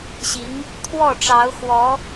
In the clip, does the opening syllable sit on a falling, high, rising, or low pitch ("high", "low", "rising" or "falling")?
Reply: rising